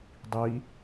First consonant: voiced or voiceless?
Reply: voiced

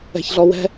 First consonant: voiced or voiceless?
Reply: voiceless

